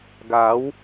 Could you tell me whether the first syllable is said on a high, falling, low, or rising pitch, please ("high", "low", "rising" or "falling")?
rising